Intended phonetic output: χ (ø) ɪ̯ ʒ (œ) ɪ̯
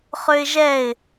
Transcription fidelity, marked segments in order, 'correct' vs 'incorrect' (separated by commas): correct, incorrect